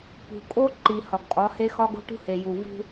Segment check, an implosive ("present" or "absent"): absent